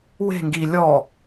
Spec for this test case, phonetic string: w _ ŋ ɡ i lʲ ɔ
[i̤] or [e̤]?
e̤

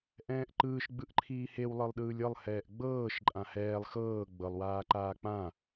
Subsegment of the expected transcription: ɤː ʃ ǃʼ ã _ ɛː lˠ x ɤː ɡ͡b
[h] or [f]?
h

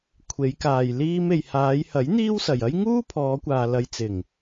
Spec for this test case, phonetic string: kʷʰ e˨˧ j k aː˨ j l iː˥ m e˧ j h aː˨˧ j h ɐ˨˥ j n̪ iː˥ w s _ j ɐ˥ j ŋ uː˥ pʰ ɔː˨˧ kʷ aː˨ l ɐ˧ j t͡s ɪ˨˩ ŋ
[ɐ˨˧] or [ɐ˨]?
ɐ˨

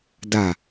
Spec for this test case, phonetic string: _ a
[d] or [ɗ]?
d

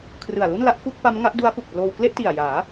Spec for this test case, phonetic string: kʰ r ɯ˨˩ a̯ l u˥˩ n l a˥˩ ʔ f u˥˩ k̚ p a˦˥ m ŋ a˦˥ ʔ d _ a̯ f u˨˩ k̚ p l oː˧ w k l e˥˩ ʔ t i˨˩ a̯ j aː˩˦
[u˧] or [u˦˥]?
u˦˥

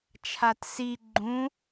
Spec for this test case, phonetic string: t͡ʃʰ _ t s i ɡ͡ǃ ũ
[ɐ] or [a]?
a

